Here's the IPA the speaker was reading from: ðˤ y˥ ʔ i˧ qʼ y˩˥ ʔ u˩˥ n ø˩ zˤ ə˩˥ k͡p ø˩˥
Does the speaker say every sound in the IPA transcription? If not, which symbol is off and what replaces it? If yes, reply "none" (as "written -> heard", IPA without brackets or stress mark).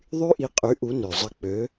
none